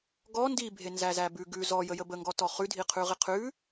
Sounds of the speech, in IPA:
ɡ ɔ n d i bʱ e n z æ z æ b ʉ ɡ ʉ z ɔ j ə j ə b ə ŋ ɡ ɔ t ɔ χ ʉ dʱ i qʰ ʉ ʁ i qʰ ʉ

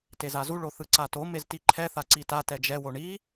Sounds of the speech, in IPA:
t e z a z u ɭ o θ ɯ ǀ a t o m e z t i ǃʰ ɛ θ a ǀ i t a t ɛ d͡ʒ ɛ w o ɳ i

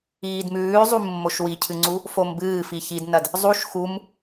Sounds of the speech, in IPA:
iː d m ʉː zˤ u mː o ʃ w i cʰ ɨ ŋ͡ǀ u | f o m b ɨː f i ç i d n ɐ d | zˤ u ʃ x u m

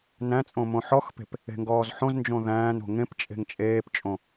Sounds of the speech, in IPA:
n æ̃ t͡sʼ õ m õ ħ ɔ x p e̤ p | e̤ ŋ ɡ ɔː z ħ õ z n d͡ʒ õ ð æ̃ː n o̤ ŋ ẽ p t͡ʃʼ e̤ ŋ t͡ʃʼ eː p t͡ʃʼ õ

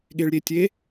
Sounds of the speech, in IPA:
ɠ e ɭ ɾʲ e tʲ e

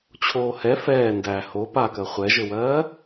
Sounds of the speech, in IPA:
t͡ɕʰ oː h ɛ f ɛː n d æ h o p a k ɜ χʷ ɛ ʒ ɘ w ɜː

